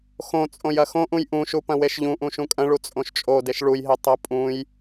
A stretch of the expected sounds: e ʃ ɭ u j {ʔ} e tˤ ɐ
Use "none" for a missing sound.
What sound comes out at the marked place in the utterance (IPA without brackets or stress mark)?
ɦ